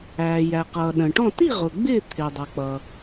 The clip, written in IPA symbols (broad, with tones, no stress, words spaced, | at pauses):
æː˩ jæ˩qʌː˩ ɗə̃˩ʈɔ̃˥˨ ti˥˨ʁʊ˩ ɡ͡bɪː˥˨ t̪ʰɪː˩dˤʌ˩k͡pʌ˩